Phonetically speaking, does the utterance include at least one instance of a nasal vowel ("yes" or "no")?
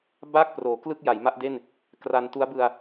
no